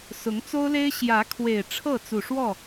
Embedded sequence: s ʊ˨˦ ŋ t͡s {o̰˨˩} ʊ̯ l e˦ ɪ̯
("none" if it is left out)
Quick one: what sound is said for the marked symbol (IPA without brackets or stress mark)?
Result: o˦